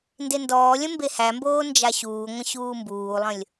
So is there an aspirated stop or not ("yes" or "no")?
no